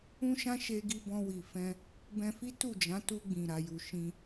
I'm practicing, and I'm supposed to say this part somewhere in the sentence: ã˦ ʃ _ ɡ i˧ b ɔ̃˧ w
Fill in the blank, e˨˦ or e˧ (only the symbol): e˧